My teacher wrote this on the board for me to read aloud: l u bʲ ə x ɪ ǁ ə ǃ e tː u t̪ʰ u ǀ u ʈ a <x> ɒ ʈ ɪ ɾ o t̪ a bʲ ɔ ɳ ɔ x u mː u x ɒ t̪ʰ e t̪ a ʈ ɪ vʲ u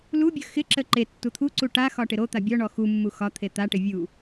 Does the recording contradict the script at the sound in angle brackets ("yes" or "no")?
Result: no